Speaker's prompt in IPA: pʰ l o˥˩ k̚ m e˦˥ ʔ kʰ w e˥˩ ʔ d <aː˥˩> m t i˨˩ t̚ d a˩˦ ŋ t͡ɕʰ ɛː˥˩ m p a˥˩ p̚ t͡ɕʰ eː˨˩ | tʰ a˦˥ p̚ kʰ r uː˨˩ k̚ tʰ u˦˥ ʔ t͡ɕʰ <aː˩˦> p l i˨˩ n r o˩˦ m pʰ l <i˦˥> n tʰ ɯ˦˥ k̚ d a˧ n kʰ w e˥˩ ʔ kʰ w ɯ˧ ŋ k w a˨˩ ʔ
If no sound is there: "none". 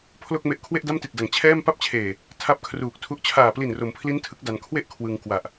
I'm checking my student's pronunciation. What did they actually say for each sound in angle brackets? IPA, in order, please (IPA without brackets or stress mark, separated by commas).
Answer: a˥˩, aː˨˩, i˦˥